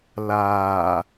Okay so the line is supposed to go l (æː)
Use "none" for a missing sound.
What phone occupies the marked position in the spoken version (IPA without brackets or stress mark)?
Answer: aː